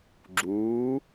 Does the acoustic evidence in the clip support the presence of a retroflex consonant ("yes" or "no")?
no